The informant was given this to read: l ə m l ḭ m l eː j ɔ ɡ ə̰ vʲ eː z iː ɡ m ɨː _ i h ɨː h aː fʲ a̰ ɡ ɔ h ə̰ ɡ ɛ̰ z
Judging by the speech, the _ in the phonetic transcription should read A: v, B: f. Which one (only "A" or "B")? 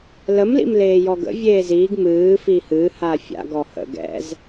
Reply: B